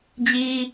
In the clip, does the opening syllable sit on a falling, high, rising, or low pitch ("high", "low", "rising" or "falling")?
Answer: high